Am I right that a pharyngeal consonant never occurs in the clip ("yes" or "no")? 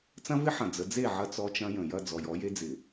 no